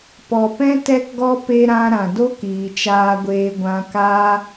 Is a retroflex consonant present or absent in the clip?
absent